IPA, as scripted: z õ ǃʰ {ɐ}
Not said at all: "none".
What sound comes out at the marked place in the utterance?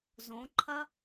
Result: ɐ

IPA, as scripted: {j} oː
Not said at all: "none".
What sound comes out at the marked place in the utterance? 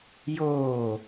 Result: j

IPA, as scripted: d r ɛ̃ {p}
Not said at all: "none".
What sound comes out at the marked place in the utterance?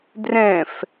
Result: f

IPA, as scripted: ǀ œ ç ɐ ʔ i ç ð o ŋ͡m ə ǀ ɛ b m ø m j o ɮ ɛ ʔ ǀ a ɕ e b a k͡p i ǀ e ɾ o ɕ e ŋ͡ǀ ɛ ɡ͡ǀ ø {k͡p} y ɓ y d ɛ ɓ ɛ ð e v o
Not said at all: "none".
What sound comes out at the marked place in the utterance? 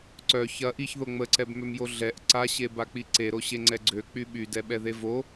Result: k͡p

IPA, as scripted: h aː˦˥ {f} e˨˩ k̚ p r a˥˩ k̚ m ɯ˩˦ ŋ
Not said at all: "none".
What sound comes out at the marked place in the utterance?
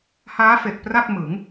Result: f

